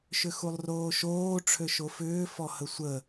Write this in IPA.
ʃ ʏ x u lˠ r oː ʃ oː ʈ͡ʂʰ ø ʃ o f ʏː f ɔ h ə sʷ ə

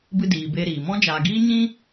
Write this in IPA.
b ɨ˧ d iː˨ b e˧ ɾ iː˨ m ɔ̃˦ d͡ʒ aː˨ ɡ iː˦ ɲ ĩ˦

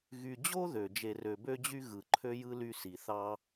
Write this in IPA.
ɣ y˨ d͡ʑ o˥ ð ø˩ d͡ʒ e˨ r ø˨ b ø˥ d͡ʑ y˥ ɣ ɯ˩ ǃʰ ø˥ j ɯ˥ l y˦ s i˩ θ ɑ˦

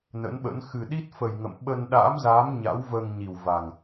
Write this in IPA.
n ə̰˧˥ n ɓ ə̰˧˥ n x ɨ˨˩ ɗ i˦˥ t̚ f ə˨˩ j ŋ ə̰˧˨ m ɓ ə˧ n ɗ a̰ː˧˥ m z aː˨˦ m ɲ a̰˧˥ w v əː˧ ŋ ɲ i˨˩ w v a˨˩ ŋ

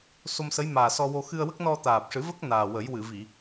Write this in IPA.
s o˧ m s ə˧˥ j m aː˨˩ s ɔ˧ w o˧ x ɨ˧ ə̯ w ə˦˥ k̚ n ɔ˧ t̪ aː˨˩ p̚ ʂ ɨ˨˩˦ v ə˦˥ k̚ n aː˨˩ w ə˨˩˦ j w ɨ˨˩˨ v i˨˩˨

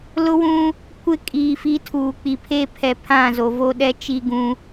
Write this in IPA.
l ʊ˦ w ũ˦ | kʷ ɪ˦ kʼ iː˨ f i˦ tʰ uː˨ k͡p i˨ pʰ eː˦ pʰ ɛ˨ pʰ ã˦˨ z o˨ v o˦ ɗ ɛ˦ t͡ʃ i˦ ɡ ũ˦

